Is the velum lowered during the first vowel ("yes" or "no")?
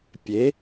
no